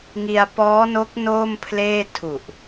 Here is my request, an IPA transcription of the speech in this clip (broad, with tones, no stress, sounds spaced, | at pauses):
ŋ i˧ a̯ p ɔː˦˥ n o˦˥ k̚ n oː˥˩ m pʰ l eː˥˩ tʰ u˨˩ ʔ